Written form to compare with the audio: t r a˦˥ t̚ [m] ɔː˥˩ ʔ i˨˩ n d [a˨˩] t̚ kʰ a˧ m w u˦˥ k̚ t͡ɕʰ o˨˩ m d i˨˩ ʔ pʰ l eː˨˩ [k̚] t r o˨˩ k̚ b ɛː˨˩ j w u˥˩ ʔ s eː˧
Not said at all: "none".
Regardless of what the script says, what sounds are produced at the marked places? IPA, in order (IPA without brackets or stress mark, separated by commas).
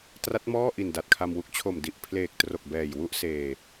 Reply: m, a˨˩, k̚